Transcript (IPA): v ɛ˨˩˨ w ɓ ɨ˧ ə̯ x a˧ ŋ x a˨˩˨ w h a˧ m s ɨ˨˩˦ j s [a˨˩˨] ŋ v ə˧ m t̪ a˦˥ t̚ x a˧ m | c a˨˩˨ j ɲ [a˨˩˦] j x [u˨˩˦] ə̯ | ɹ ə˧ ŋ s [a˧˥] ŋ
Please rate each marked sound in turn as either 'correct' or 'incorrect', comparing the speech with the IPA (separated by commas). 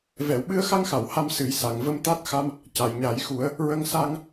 correct, correct, correct, incorrect